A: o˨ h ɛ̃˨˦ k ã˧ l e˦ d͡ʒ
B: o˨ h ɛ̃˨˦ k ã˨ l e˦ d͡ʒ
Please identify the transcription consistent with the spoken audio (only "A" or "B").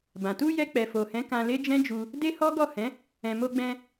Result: A